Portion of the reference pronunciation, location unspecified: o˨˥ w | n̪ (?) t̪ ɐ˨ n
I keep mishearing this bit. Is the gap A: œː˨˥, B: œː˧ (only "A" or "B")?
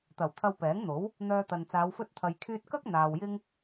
B